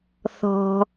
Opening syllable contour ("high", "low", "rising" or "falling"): low